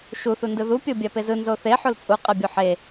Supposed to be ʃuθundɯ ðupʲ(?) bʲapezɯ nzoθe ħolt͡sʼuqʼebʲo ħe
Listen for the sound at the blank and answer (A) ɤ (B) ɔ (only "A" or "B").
A